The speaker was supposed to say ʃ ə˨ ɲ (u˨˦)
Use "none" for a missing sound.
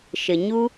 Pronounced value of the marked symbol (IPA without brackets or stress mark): u˦